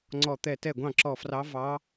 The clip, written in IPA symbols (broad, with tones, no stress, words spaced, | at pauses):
ŋ͡ǀɔ˧˩t̪ɛ˧˩ tɛ˧˩ɡʷɑ̃˧˩ ǁɔ˧˩frɑ˧˥ vɑ˧˥